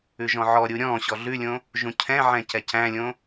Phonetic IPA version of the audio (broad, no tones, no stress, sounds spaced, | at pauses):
ʉ ʒ ɔ̃ ʕ ɔ ɾʲ u ɾʲ ɔ̃ ɕ ɔ ɮ ʉ lʲ õ | ʒ ũ cʰ ɛ̃ ʕ ɛ̃ c ɛ c æ̃ lʲ õ